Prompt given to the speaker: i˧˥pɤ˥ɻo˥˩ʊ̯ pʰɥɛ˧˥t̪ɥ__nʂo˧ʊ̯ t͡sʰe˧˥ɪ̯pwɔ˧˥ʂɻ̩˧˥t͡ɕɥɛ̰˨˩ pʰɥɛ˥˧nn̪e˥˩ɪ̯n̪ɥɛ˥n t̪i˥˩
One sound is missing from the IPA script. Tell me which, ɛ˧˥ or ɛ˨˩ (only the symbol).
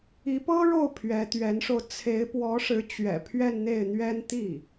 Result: ɛ˧˥